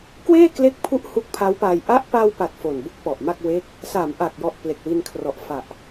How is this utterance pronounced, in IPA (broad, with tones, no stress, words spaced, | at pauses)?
kweː˥˩kle˦˥k̚pʰu˦˥ʔ hu˦˥k̚pʰa˦˥wpaː˧j ʔa˦˥ʔpa˧wpa˨˩t̚ fo˨˩nbu˦˥k̚ pɔ˨˩ʔma˥˩k̚ we˦˥k̚ | sa˩˦mʔa˨˩k̚jɔ˨˩ʔ ple˨˩k̚wi˧nkʰrɔ˨˩ʔ fa˨˩ʔ